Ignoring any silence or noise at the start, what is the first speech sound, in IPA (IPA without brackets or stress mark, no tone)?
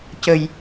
c